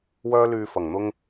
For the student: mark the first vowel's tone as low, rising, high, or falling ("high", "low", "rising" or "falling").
high